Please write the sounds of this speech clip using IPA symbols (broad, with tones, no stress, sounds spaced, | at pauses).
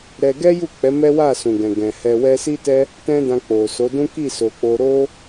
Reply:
ɾ ɛ˧ ɡ ɛ˦ j u˦˨ k͡p ɛ˨˦ m ɛ˦ w a˦˨ s ũ˨ ɡ ɛ̃˨ ɡ ɛ̃˨ h ɛ˧ w ɛ˧ s i˦ t ɛ˦ | t ɛ̃˧ d ã˧ k͡p o˨ s o˨˦ d ũ˦ k i˦˨ s o˨ k͡p o˧ ɾ o˦